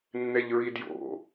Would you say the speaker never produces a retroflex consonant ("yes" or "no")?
yes